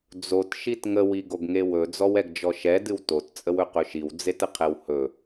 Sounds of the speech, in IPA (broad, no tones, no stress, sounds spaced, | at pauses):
d͡z o t ʃ i t ŋ ə w i ɡ o ɡ ŋ e w ɵ d͡z ɔ w ɛ ɡ d͡ʒ ɔ ʃ ɛ d ɨ w t o t t͡sʼ ə w ɵ q ɵ ʃ i w d͡z e t ə qʰ ɛ w h ɵ